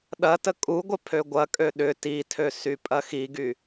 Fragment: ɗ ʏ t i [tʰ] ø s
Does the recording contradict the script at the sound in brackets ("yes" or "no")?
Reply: no